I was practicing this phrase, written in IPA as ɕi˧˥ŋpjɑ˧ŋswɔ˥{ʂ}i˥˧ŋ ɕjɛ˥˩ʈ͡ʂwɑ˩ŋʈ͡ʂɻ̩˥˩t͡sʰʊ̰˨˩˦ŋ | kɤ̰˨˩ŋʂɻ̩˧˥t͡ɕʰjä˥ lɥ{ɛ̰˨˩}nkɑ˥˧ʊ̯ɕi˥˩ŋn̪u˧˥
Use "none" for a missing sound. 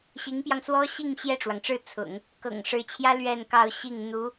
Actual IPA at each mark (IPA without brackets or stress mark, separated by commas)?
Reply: ɕ, ɛ˥˧